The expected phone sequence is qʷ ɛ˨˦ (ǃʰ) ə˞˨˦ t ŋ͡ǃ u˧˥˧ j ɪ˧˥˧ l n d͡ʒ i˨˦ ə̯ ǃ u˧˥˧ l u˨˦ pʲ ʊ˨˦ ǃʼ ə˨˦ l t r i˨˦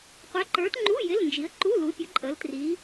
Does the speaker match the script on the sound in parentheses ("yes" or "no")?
no